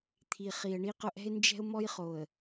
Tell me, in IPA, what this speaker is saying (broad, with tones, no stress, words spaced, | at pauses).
t̪ʰi˨χi˨ə̯ɳi˦qʊ˦ ʔɛ̤˦ɪ̯nd͡ʒɛ̤˦ʊ̯ mɔ˦jχo˨ə̯